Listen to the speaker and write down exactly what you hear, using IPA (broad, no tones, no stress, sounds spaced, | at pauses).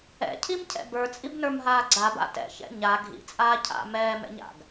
ɛ̰ cʰ i m cʰ ɛ̰ b ə˞ t͡sʼ i b n ə˞ m ɦ aː ɡ͡ǀ a b a̰ t ɛ̰ ç ɛ̰ ɲ a ɡʱ ḭ t͡sʼ aː cʰ a̰ m ɛː m ɛ̰ ɲ a̰ ɡ